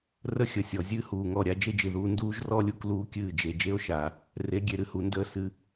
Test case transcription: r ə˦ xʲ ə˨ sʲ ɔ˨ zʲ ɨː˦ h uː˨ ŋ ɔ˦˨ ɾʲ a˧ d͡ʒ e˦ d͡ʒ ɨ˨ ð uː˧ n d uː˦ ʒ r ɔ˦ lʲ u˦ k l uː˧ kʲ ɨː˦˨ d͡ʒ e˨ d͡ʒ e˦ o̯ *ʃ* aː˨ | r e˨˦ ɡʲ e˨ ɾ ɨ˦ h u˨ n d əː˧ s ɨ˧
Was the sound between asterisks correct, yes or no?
yes